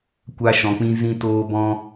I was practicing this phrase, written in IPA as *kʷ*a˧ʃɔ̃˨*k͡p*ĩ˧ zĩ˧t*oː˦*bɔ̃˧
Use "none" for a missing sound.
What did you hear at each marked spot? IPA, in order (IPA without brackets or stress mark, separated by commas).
kʷ, k͡p, oː˧